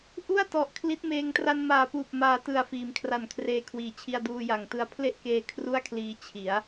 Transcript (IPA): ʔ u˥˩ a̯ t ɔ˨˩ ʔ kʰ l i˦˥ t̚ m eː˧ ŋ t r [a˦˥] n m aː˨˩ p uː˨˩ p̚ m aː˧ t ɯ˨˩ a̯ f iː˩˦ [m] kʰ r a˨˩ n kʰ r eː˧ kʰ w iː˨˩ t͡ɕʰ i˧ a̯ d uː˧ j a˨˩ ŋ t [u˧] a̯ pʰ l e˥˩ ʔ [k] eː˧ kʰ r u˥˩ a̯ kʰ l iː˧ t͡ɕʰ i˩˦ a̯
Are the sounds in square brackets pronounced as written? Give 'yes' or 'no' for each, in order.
no, yes, no, yes

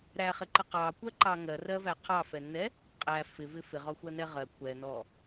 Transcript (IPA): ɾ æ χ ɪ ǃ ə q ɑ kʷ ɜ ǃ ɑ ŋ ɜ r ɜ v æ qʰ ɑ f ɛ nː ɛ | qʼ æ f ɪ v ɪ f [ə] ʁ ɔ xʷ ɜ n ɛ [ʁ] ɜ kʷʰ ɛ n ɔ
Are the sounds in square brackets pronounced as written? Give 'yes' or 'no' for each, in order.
no, yes

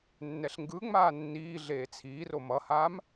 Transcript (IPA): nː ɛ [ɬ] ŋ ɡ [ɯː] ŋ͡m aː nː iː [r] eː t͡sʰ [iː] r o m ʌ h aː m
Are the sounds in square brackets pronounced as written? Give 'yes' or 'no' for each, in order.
yes, no, no, yes

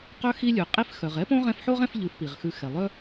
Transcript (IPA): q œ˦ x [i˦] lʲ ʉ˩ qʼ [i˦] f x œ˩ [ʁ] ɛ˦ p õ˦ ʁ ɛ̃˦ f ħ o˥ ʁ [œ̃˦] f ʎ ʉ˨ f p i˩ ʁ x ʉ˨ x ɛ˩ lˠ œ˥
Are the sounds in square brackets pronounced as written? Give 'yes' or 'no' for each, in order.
yes, yes, yes, no

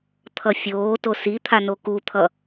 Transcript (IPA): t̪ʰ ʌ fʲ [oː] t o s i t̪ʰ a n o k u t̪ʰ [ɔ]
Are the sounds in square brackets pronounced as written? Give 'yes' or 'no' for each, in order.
yes, no

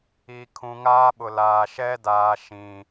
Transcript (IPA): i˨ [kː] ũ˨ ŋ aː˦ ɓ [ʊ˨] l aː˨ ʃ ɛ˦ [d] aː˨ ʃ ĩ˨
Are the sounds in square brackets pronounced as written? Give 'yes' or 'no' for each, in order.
no, yes, yes

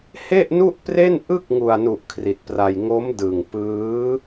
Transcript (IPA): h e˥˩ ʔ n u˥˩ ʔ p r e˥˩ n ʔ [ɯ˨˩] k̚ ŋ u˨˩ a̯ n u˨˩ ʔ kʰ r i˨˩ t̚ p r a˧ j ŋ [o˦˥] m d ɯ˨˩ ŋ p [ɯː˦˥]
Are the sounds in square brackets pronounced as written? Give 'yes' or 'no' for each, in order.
no, yes, yes

